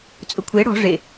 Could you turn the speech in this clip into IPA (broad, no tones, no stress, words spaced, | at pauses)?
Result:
t͡sʼʊkʷʰe ɽɔ̤ ʐe